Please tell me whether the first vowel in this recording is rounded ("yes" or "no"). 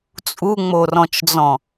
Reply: yes